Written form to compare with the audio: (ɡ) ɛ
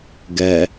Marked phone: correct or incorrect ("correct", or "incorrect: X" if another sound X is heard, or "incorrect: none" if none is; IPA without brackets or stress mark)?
correct